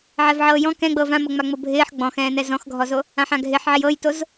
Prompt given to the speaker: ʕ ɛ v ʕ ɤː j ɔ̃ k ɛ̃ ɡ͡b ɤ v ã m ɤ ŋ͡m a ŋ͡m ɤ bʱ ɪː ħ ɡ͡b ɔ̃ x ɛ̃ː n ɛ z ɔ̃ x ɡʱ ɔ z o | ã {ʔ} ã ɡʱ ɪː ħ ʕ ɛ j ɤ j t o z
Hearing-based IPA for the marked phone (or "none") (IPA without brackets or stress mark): ħ